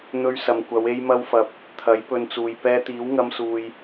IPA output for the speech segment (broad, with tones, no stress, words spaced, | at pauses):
n̪ɵ˧ɥ sɐ˨mkʷɐ˨˧w e˥jmɐ˥wfɐ˧p̚ | t̪ʰɐ˨˥jpɵ˧nt͡suː˨j pɛː˧t̪iː˨˥wŋɐ˧msuː˨j